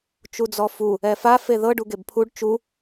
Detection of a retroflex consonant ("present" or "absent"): present